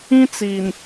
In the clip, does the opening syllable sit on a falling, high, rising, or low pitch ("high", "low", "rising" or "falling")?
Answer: high